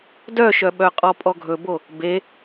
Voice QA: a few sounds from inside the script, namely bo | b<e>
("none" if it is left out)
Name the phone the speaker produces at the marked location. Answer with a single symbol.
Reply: e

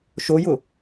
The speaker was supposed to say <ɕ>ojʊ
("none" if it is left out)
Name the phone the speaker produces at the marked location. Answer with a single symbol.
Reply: ʃ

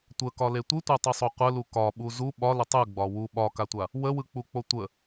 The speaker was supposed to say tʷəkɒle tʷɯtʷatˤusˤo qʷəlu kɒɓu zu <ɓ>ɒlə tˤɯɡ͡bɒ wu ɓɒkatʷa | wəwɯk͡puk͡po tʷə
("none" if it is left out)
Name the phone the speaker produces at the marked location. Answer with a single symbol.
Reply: ɓ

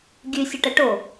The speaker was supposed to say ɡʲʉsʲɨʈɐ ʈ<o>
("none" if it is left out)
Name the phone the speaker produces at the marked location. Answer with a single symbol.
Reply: o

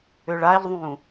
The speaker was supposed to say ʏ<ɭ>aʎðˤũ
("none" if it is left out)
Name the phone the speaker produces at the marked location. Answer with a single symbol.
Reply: ɭ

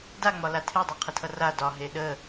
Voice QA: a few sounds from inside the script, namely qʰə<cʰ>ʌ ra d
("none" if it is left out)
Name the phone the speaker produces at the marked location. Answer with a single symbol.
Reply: tʰ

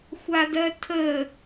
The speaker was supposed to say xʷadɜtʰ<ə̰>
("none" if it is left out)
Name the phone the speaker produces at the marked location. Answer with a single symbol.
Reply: ə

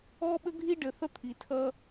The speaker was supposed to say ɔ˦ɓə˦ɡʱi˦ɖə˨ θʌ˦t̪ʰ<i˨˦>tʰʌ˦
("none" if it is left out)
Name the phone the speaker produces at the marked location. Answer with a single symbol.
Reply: i˨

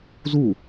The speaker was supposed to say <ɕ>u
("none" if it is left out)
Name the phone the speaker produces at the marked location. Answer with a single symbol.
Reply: z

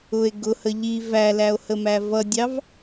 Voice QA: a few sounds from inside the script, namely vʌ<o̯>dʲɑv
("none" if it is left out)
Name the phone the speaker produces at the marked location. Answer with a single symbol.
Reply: none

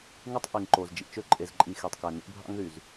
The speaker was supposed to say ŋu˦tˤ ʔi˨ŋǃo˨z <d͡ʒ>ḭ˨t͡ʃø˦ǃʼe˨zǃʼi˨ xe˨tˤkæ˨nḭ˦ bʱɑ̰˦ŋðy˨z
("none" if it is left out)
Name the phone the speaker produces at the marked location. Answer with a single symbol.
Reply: d͡ʒ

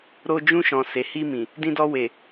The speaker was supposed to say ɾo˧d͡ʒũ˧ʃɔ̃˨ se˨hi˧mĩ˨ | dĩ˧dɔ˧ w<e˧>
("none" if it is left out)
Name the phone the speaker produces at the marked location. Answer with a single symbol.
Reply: e˨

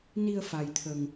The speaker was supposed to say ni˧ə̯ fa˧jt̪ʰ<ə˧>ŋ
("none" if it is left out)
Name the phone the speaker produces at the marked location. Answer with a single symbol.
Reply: ə˧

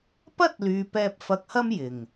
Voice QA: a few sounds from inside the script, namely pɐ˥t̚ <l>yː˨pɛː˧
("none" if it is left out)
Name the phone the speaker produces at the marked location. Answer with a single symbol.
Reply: l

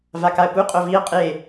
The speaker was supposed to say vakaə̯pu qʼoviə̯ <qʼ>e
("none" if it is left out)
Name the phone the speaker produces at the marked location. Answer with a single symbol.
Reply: qʼ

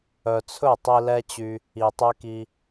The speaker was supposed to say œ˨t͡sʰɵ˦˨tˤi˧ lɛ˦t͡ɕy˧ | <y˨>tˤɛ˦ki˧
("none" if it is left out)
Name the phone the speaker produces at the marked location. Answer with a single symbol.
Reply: i˨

